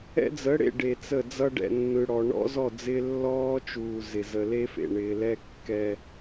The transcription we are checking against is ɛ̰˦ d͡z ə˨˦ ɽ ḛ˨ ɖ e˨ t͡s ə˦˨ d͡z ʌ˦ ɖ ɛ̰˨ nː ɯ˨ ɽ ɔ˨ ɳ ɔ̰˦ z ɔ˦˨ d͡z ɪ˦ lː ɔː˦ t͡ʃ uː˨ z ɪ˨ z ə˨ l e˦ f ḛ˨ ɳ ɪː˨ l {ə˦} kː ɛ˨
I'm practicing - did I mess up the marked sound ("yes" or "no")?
yes